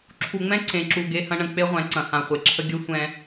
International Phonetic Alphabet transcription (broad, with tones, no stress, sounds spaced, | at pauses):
ǁʰ u˨ ŋ͡m ɛ̃˦ ǀ ẽ˨ ǁ u˨ ɡ e˦ h ɐ̃˦ ɳ ə̃˨ k͡p e˦ ʁʷ ɛ̃˨˦ ǀ ɐ̃˨ h ã˨ χʷ e˨ ǁʰ ə˦ ɡʲ ə˦˨ sʷ ɛ̃˨